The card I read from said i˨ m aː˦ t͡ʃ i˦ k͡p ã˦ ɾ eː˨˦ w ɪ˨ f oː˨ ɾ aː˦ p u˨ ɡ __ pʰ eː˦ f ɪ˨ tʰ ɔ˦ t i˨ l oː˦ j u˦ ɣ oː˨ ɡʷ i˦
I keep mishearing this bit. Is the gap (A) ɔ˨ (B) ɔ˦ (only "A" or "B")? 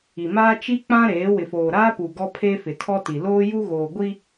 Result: B